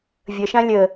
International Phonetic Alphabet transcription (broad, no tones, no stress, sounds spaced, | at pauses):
vʲ ə ʃ ã lʲ ə